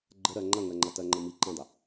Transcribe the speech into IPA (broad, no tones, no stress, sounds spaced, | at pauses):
ɡ͡ǃ ə ɾ ɜ ŋ͡ǃ ɐ ŋ ɜ ŋ͡ǃ ɐ t ɜ ŋ͡ǃ ə̃ m i ǃ ə̃ dˤ ə